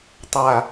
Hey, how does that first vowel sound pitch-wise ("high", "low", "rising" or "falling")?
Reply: falling